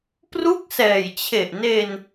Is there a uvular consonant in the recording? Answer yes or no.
no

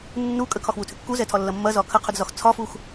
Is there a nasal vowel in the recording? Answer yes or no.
no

